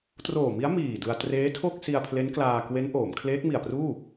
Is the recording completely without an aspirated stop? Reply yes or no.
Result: no